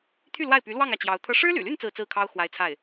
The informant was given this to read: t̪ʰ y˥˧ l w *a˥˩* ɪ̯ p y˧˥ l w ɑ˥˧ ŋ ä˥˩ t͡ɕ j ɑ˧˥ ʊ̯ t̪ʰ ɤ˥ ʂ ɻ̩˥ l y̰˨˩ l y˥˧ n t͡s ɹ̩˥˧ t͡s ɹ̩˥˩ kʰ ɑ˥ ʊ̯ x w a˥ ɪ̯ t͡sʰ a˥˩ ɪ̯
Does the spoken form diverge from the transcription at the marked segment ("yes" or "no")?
no